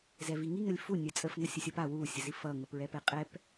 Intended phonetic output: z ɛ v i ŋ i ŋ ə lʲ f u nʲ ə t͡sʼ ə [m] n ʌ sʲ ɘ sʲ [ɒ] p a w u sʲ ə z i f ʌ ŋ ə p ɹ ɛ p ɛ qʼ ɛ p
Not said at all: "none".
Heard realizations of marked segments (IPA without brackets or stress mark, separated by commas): f, ʌ